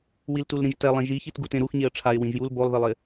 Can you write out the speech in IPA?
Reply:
wiltulɾĩʒtɛ lˠẽʒiçit ɡutẽɾuxɲeə̯ ʈ͡ʂʰaɪ̯ wĩʒjul bolˠðɪlˠɪ

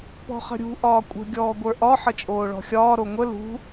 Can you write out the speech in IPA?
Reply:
pɔ̤χə̤ɾʲṳ ʔɒːkʷʼə̤ ɡʲɔːɡʷə˞ʔɒ ħət͡ʃʼoːɭɔ̤xʲɒː ɾoŋʷə lṳ

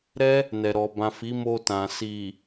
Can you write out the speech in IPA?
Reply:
ɾɛ˦ | nɛ˨ɾɔ˨ bã˨ fi˨˦mo˧ tã˨ si˨

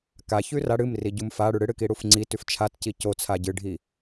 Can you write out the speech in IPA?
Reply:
ka çʉra ɽɨm riɟumfaɽʉ ɽɨɽɨki ɽufŋ͡ǀitʉf t͡ʃʰatci cot͡sʰa ɟɨɖʱi

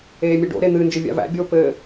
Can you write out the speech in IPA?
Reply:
eːmʲeɖo̰ ɾen̪ɨ nd͡ʒɘvʲa̰væ̰ bʲoːpɘː

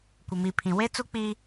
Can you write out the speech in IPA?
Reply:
kʷɪ˨mi˨pʰĩ˨ we˦t͡su˦k͡pi˦

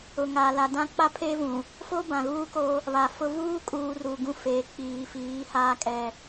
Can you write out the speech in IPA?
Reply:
ʊ˨ŋa˨la˨dã˦ k͡pa˦pʰe˦vũ˨ | fo˦bã˨ɣuː˦ko˦ | βa˨fʊ˦ vuː˦kʼuː˨ ru˨ɡũ˦feː˨ k͡piː˨fiː˨˦ haː˦kʼɛ˦

